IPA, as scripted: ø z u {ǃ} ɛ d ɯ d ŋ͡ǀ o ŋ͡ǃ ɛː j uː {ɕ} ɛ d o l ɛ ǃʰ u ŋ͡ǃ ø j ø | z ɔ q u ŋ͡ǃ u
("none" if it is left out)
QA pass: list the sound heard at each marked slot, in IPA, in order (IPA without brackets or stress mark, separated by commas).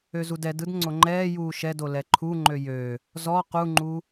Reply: d, ʃ